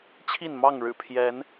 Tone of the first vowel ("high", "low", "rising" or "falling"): falling